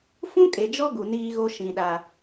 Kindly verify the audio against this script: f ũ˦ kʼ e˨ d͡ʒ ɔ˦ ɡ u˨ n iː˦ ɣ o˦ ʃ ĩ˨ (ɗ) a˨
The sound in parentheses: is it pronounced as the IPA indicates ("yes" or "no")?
yes